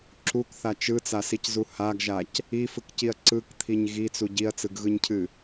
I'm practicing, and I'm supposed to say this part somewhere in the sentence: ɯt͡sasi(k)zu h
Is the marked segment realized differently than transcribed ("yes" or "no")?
yes